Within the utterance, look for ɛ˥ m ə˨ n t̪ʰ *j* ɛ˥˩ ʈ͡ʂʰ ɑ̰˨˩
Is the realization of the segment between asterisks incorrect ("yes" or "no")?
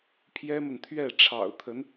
yes